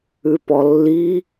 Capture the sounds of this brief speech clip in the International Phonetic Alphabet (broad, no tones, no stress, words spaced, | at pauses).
ʉpɔlːi